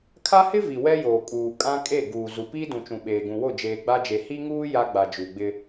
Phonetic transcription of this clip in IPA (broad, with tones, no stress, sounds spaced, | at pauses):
kʰ a˦ h ɪ˦ v i˨ w ɛ˦ j oː˨ kʼ uː˨ kʼ ã˦ kʼ e˦˨ ɡ uː˨ z u˨ p iː˦ d ũ˨ t͡ʃ ũ˨ ɓ eː˨ ɡ ũ˨ w o˦˨ d͡ʒ eː˨ ɡ͡b a˦ d͡ʒ e˨ h i˦ ŋ uː˦ j a˦ ɡ͡b a˨ d͡ʒ u˨ ɡ͡b ɪ˦